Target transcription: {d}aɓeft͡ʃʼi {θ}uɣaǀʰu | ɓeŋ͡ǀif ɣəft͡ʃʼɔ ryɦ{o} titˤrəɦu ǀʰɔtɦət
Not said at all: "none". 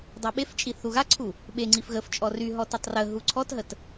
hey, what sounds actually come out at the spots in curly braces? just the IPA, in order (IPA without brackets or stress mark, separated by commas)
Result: dˤ, θ, ɔ